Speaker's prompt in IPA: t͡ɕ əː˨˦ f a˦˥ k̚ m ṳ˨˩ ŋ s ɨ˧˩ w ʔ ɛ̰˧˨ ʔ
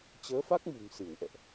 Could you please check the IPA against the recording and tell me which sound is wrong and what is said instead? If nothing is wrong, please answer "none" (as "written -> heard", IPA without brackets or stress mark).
none